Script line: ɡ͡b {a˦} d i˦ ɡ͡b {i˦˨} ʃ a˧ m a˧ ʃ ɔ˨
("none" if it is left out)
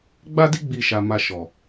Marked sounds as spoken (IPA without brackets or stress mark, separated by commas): a˦, i˦˨